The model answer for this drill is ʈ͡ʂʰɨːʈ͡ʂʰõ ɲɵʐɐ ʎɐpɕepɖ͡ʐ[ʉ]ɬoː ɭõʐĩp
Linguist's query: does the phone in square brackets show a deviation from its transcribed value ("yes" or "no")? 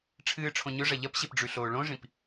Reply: no